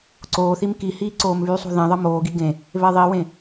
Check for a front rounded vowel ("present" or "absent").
present